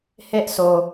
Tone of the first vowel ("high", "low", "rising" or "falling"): high